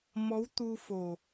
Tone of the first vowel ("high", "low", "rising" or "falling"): rising